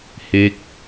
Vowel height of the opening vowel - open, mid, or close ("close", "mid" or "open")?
mid